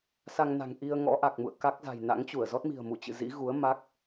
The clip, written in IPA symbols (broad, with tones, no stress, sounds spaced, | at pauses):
s a˧ ŋ n a̤˨˩ ŋ ʔ i˧ ə̯ ŋ ɔ̰˧˥ ʔ a˨˩ k̚ m ṵ˧˨ ə̯ k a˦˥ k̚ z a̤˨˩ j n a̰˧˥ ŋ t͡ɕ u˧˩ ə̯ z ɔ˦˥ t̚ m i̤˨˩ ə̯ m u˧˩ t͡ɕ ɨ̰˧˨ z ḭ˧˥ ɣ u˨˦ ə̯ m a˦˥ k̚